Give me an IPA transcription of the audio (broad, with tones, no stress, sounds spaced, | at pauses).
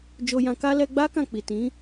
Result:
d͡ʒ o˧ j ã˧ k a˦ l ɛ˧ ɡ͡b a˦ k ã˦˨ k͡p i˨ t ĩ˨˦